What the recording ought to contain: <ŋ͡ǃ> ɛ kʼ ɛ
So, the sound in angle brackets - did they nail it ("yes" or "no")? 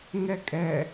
no